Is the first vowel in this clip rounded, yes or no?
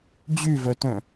yes